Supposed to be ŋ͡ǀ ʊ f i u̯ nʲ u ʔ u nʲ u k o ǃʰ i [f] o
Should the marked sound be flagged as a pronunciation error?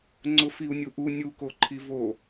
yes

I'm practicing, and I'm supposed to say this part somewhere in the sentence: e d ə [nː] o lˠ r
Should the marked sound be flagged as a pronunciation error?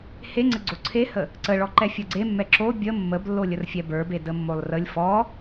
yes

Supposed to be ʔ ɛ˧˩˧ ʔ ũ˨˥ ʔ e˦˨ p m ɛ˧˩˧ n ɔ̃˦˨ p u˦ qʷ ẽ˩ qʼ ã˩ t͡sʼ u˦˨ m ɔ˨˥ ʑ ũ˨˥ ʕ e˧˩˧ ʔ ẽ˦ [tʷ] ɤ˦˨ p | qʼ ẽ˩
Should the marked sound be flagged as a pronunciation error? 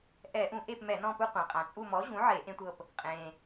no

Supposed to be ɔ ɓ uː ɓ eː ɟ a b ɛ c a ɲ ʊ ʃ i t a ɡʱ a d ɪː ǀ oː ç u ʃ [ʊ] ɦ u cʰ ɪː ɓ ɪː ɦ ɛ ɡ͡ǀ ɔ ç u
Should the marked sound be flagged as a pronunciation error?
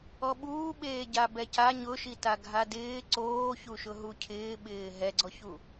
no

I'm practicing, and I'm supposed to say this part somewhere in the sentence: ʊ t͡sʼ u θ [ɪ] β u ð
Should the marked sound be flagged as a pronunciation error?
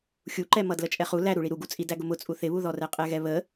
no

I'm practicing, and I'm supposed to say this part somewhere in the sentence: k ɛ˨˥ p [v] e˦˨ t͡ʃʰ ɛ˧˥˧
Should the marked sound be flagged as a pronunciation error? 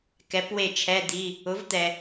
yes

